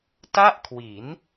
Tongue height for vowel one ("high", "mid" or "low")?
low